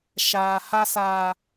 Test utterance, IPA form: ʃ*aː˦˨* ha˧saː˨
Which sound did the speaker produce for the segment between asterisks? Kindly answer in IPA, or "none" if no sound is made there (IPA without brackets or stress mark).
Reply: aː˨